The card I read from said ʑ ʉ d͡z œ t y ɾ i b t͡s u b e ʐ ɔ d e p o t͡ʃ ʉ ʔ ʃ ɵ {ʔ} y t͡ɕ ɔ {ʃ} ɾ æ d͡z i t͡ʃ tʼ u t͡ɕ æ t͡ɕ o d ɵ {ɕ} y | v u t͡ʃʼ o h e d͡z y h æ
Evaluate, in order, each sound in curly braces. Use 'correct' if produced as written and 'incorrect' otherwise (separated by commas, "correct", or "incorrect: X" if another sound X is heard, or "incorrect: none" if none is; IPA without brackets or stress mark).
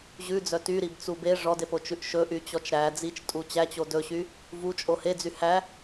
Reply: correct, incorrect: t͡ʃ, correct